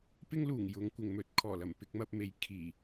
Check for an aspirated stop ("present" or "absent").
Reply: present